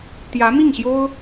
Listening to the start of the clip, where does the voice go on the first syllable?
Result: rising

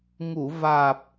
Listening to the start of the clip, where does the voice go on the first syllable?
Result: low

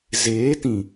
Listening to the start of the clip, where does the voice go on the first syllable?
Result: rising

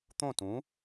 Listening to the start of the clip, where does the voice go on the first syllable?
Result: falling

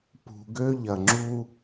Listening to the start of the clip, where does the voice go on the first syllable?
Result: low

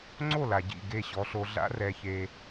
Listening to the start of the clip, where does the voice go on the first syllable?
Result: falling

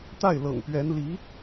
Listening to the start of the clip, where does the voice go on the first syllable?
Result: falling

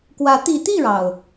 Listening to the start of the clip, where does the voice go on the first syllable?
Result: rising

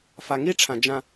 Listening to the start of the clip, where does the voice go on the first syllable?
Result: low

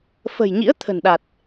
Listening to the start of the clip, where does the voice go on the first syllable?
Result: low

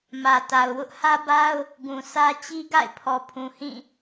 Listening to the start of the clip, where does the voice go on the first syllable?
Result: low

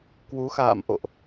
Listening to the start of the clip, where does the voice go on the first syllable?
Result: rising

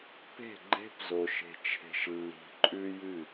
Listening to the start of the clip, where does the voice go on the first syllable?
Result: falling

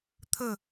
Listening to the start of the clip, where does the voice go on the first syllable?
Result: falling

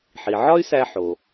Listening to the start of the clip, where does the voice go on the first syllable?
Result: low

